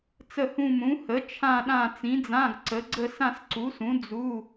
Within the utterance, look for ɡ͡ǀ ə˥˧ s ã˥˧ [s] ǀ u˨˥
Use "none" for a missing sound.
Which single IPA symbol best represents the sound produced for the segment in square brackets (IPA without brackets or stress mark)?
s